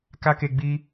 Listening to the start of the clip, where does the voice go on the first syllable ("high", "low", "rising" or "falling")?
high